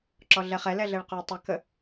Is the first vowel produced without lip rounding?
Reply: no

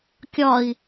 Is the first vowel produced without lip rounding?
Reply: no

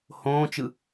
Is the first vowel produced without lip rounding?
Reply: no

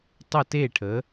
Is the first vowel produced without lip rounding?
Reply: yes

